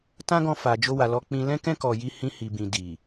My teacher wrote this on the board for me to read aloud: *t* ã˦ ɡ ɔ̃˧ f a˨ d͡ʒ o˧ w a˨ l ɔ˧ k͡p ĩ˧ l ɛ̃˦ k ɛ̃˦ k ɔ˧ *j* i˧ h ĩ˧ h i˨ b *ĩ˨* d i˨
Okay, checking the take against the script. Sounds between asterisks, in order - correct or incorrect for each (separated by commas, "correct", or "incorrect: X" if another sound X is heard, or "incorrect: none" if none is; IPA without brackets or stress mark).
correct, correct, correct